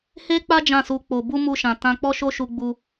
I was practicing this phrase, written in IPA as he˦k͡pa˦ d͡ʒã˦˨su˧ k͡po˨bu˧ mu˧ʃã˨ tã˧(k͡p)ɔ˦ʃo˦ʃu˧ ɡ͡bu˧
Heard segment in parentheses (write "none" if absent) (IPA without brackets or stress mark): k͡p